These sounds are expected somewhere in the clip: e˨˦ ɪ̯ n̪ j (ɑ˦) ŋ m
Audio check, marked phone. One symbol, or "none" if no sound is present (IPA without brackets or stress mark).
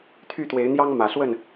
ɑ˦